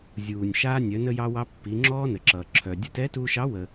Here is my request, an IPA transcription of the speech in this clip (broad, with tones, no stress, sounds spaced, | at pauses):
zʲ uː˩ nʲ ʃ aː˧ nʲ œ˩˧ n ə˧ j ɑ˧ w ɑ˧ pː i˩˧ ŋ͡ǁ ɔː˥ n ə˩ ǁ ʌː˩ ǁʰ œ˩ dʲ ə˧ t ɛ˧˥ t uː˧ ʃ ɑ˧˥ w ə˩